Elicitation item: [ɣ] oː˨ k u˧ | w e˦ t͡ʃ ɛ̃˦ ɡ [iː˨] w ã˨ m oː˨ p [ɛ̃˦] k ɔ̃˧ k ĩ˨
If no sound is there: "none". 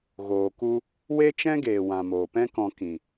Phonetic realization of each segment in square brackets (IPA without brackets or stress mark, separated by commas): ɣ, eː˨, ɛ̃˦